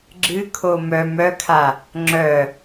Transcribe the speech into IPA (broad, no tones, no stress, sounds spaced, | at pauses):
ɡ͡ǁ ɨ kʰ o m œ m œ kʰ a | ŋ͡ǁ œ